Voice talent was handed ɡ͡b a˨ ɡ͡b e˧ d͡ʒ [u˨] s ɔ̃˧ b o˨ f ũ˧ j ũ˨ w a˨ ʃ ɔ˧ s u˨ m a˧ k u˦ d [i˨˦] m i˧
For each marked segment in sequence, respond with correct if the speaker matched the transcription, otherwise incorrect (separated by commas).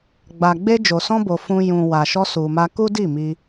incorrect, incorrect